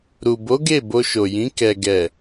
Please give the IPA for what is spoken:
ɾ u˨ b o˨˦ ɡ e˦˨ b o˧ ʃ o˨ j ĩ˨˦ k ɛ˧ ɡ ɛ˨

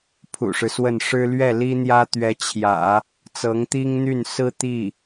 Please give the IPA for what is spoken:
pʰ ṵ˨˩ ʂ ɻ̩˦ s w ə˥˩ n ʂ ɻ̩˥ l ɥ ɛ˥˩ l i˥ n̪ j ä˥ t̪ ɥ ɛ˧˥ t͡ɕʰ j ä̰˨˩˦ | t͡s ɤ˧˥ ŋ t̪ i˥ ŋ n̪ y˥˩ n s ɹ̩˥ t̪ i˥˩

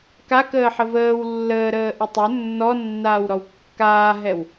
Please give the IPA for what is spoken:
k a k əː ħ ə v əː w lː əː ɾ əː ʔ ə tˤ ɵ nː ɔ nː aː w ɾ ɔ w kː aː ɦ ɛ w

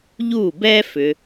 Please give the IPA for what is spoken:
ʎ uː˥˩ b ɛː˥ f ʏ˨˦

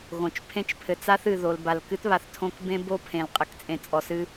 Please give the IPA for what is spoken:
ɣ õ˨ t͡ʃ pʰ ẽ˦ t͡ʃ pʰ ɘ˨ t͡s a˦ θ ɨ˨ ð o˨ l b a˨ l k ɨ˦ t β a˨ θ tʰ õ˦ k b ẽ˦ b o˦ pʰ ẽ˨ l qʼ ɘ˨ k t͡sʼ ẽ˨ t͡sʼ ɔ˨ s ɨ˦

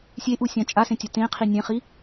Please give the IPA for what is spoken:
sʲ e ʔ u sʲ ã t͡ʃʼ a s ẽ tʲ ɐ t ẽ qʰ i nʲ ẽ χ i

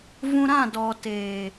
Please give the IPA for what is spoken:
v ũ˧ ɾ ã˦˨ d ɔ˨ t eː˨

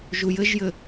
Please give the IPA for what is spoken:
ʒ u j ɘ ʒ j ɘ

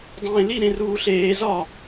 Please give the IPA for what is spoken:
dˤ ẽː l i ɾ ẽ r uː ɬ eː z ɒ

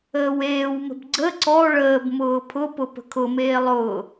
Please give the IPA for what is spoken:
əː w eː w m ə̤ b ɡ͡ǀ ə ǀ ɔ ɭ əː b m ʊː pʰ ʊ p ʊ p ə̤ kʰ ʊ m eː lˠ ʊː

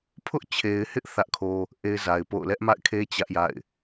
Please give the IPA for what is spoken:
pʰ ʊ˦ ʔ t͡ɕʰ e˨ ɪ̯ h ɪ˦ ʔ θ ä˦ ʔ kʰ o˦ | ʔ e˦ ɪ̯ z a˨ ɪ̯ p o̰˦˨ ʊ̯ l ɛ˦ ʔ m a̰˦˨ ɪ̯ kʰ e˦ t͡ɕ ä˦ ʔ j a̰˦˨ ɪ̯

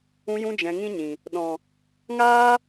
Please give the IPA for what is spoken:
ũ˧ j ũ˧ d͡ʒ ɛ̃˨ ŋ ĩ˦ ɲ ĩ˨ | ɗ ɔ̃˨ | ŋ aː˦

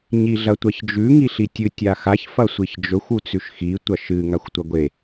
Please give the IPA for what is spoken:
ɲ i ɮ ɐ tʷ ɐ ç d͡ʒ ʉ ŋ i ɬ i tʲ ɨ tʲ a x a ç f ɐ sʷ i ç d͡ʒ ɵ xʷ u t͡s ʉ ʃ x i tʷ ɐ ʃ ɨ ŋ a xʷ tʷ ɐ ɡʷ e

